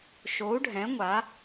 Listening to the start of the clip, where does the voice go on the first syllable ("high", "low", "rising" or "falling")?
rising